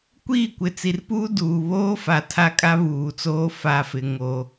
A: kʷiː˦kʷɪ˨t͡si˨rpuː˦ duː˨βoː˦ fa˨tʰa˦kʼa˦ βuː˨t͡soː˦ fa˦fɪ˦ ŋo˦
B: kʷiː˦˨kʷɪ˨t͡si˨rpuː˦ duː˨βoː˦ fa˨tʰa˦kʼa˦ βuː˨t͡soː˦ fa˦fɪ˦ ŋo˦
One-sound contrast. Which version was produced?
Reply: B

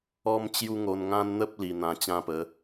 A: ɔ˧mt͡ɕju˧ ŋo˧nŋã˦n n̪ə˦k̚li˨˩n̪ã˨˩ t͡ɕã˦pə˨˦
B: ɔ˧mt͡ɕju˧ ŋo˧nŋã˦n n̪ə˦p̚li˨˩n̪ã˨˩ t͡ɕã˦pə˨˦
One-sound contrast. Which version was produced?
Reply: B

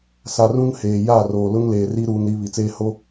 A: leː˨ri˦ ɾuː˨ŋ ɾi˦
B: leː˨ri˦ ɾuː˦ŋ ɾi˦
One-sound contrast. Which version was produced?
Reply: B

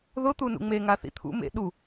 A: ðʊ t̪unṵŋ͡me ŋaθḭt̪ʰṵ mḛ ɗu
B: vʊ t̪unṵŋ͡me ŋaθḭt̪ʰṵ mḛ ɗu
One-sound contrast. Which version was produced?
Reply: A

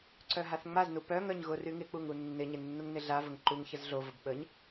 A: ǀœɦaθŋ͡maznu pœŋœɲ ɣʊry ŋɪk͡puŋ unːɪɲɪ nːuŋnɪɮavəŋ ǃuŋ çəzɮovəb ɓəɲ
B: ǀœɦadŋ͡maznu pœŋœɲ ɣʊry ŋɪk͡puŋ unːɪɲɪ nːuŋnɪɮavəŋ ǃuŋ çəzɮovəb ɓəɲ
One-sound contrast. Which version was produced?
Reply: A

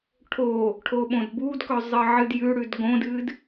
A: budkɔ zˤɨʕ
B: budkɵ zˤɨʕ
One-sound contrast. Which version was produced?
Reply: B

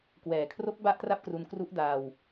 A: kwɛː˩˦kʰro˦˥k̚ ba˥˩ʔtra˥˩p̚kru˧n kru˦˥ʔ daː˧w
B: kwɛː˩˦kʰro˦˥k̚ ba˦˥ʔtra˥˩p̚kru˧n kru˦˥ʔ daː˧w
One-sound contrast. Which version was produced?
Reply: A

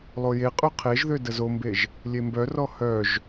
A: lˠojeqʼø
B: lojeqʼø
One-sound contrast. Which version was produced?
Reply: A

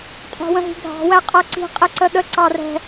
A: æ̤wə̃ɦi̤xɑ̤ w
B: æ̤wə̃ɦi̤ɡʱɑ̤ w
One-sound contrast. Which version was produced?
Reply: B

